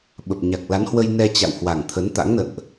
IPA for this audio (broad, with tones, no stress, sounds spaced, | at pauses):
ɓ ə˨˩ p̚ ɲ a˨˩ k̚ l a˨˦ n h w ə˧ j n ɛ˧ t͡ɕ a̰˧˨ w h w a˨˩ ŋ t̪ʰ ə˨˦ n t̪ a̰˧˥ ŋ n ə̰˧˨ n ʔ